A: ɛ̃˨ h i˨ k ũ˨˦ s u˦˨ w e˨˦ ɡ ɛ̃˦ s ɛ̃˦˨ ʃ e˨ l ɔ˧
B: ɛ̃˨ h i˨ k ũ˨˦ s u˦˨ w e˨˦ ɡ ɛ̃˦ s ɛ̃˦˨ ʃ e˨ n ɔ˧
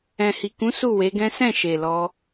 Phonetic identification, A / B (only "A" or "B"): A